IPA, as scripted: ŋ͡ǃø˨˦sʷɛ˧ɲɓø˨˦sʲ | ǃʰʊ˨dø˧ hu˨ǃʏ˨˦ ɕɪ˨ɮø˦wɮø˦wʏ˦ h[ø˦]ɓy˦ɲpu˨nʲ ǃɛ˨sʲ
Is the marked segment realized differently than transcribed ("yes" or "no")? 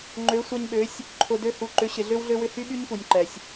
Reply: yes